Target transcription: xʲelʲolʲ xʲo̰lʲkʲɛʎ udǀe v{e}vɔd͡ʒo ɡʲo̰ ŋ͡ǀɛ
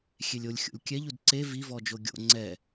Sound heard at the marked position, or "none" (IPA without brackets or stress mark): i